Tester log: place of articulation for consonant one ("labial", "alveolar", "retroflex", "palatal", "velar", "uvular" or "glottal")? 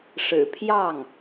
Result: retroflex